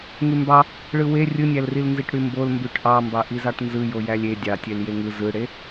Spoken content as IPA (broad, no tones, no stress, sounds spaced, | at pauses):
ŋ y m b ɑ | ɭ ɯ w e rʲ ɯ nʲ æ l r i l n z i ʈ ɽ y m b o l m b y ʈ ʔ ɑ m b ɑ ʔ i z ɑ ʈ n z ɯ j o j æ lʲ e dʲ ɑ tʲ e l j e ŋ ɯ z ɯ ɽ e